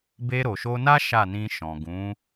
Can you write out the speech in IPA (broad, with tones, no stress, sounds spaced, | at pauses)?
b e˧ ɾ o˨ ʃ o˧ n a˦ ʃ a˦˨ n ĩ˧ ʃ ɔ̃˨ ɡ ũ˨˦